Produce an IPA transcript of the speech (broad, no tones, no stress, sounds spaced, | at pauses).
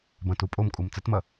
b ɐ̃ t u pʼ o m kʼ u m t͡s ɘ t m ɐ